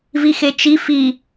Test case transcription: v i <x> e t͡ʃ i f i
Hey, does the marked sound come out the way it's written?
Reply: yes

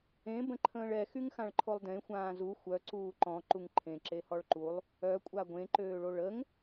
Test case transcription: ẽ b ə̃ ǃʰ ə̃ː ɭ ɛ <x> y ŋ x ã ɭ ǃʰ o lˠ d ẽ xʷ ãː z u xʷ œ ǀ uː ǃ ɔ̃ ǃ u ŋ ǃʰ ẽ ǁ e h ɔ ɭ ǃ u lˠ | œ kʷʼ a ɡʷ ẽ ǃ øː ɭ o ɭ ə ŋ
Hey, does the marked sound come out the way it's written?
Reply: yes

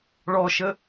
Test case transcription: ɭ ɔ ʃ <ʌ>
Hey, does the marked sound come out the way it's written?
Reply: no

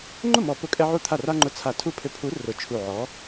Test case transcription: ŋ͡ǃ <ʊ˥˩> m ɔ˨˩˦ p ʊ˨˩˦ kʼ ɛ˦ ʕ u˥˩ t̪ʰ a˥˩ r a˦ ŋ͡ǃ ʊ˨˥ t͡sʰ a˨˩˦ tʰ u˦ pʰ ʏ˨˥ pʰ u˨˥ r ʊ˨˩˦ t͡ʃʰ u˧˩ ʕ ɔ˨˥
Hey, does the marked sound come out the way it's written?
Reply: yes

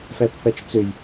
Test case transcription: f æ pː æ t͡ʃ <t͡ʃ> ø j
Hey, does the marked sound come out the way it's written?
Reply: no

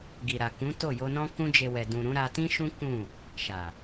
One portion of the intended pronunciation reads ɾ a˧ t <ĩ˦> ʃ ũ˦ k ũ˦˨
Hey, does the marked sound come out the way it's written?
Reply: yes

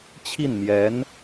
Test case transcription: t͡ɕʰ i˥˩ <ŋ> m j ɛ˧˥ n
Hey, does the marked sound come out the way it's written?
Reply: no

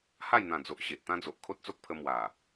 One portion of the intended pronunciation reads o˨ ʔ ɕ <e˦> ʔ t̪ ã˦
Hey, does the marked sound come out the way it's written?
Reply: no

